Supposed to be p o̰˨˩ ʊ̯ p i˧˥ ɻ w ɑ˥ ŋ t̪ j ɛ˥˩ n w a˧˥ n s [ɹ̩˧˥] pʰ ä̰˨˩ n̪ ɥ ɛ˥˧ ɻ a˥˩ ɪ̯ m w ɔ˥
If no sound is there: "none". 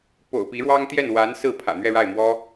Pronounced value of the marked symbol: ɹ̩˥˩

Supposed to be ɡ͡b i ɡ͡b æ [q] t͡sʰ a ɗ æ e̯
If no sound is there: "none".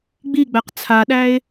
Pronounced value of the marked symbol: q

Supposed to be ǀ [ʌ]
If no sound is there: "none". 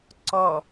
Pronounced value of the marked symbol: ɔ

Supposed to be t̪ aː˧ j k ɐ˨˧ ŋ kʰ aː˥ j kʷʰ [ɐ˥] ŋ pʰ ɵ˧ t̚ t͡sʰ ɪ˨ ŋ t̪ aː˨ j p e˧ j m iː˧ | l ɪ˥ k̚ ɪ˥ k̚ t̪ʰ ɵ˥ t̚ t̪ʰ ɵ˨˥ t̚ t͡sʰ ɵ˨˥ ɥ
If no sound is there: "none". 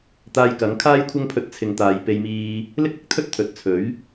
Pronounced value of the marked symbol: ɐ˥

